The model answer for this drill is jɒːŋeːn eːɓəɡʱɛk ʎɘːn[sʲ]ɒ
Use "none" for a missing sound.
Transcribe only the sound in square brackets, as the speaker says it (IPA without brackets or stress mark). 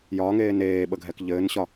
ɕ